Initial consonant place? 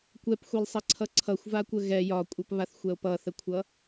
velar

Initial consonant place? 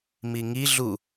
labial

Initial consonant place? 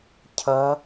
palatal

